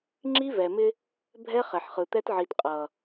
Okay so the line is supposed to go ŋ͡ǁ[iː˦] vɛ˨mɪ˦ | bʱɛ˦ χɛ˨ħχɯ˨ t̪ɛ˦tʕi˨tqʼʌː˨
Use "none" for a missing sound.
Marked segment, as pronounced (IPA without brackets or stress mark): i˦